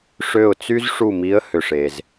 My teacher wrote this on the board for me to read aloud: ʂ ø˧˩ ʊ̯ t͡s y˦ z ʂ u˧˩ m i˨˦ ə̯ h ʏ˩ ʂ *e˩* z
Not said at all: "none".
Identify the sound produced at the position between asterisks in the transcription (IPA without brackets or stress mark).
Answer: e˩